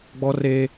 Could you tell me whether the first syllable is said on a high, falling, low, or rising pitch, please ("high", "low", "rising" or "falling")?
high